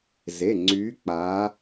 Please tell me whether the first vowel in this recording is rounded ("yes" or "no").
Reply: no